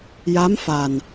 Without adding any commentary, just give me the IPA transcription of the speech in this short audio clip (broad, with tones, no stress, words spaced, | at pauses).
ja˧˥m fa˨˩n